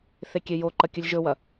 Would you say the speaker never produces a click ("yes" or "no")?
no